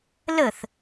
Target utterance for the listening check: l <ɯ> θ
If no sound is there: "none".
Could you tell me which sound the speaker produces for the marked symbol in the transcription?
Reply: ə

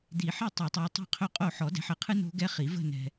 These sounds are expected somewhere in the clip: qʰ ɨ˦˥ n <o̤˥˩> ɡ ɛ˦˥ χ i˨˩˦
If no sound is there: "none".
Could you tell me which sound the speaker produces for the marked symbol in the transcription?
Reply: o̤˦˥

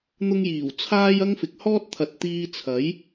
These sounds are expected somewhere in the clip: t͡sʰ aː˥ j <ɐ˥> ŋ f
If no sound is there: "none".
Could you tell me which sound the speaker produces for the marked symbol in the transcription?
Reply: ɐ˥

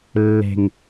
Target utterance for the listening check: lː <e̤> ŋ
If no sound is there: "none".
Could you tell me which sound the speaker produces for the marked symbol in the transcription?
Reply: e̤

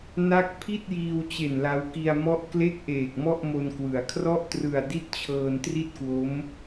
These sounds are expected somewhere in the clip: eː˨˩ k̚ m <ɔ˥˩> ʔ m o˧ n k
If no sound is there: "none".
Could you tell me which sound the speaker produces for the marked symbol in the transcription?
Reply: ɔ˥˩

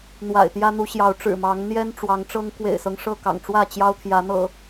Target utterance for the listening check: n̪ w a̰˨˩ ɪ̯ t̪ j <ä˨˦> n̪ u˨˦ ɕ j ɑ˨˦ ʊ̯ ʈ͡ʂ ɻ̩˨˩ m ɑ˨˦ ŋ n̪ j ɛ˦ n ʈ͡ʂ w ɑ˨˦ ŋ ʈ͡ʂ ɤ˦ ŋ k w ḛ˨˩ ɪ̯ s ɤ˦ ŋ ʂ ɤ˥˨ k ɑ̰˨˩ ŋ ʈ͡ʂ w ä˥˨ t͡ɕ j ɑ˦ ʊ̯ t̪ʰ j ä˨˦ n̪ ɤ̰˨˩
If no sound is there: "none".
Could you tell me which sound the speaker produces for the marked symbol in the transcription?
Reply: ä˦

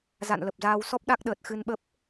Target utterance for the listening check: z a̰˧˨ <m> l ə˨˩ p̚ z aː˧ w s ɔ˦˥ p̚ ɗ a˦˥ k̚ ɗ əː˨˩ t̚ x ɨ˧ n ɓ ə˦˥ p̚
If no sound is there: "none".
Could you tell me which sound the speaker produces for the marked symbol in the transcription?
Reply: n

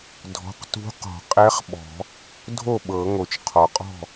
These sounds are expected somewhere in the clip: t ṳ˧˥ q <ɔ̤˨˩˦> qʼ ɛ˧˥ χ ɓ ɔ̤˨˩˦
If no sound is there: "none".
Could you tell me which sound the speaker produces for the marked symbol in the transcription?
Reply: ɔ̤˨˩˦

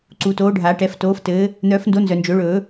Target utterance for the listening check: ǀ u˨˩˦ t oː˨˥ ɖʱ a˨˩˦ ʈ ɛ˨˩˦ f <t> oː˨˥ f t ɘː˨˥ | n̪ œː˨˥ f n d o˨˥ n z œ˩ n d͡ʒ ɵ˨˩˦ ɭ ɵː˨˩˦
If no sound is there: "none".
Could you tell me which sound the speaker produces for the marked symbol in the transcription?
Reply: t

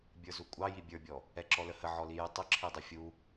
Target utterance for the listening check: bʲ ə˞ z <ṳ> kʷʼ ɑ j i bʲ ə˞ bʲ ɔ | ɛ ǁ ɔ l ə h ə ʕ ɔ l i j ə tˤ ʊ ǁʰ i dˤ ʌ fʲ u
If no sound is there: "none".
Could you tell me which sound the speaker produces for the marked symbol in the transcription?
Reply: u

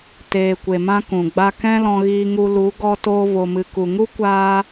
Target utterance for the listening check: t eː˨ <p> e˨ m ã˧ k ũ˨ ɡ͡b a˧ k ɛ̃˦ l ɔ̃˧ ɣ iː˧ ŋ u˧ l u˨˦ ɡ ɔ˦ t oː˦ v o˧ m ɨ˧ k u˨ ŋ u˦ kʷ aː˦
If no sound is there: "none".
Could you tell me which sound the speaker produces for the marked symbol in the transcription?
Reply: kʷ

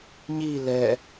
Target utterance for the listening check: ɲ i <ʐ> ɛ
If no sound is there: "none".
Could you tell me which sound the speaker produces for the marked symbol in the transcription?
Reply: l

